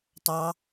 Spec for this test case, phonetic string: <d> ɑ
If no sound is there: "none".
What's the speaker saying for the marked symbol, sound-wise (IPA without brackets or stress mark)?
tˤ